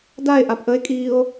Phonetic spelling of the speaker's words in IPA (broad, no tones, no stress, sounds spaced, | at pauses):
d a e̯ ʔ a p ʔ ə e̯ kʼ iː o̯